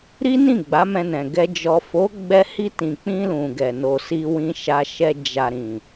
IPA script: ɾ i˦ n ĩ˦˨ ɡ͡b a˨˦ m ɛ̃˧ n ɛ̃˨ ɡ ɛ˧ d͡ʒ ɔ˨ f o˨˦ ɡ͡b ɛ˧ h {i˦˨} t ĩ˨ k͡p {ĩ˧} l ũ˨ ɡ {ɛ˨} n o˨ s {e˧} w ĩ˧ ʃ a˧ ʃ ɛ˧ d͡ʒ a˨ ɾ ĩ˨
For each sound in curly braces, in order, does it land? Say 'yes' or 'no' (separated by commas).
no, yes, yes, no